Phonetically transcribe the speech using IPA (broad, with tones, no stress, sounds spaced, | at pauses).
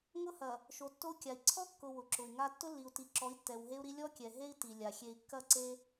ŋ ʊ˦ h ɐ˨ | ʃ o˨ tː o˦ u̯ kʲ a˨ i̯ ǀʰ ɔ˦ kː ʊ˨ w ʊ˨ ǁ ʊ˨ i̯ ŋ a˦ tː ʊ˦ lː i˨ u̯ t i˨ ǁ ɔ˨˦ i̯ tː ɛ˨ w ɦ e˦ u̯ ɾ i˦ lʲ ɔ˦ kʲ ɛ˨ ɦ e˦ i̯ t i˨ lʲ a˨ xʲ e˨ i̯ kː ɐ˦˨ ǀ e˦